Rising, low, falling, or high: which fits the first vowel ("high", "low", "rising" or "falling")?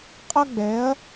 high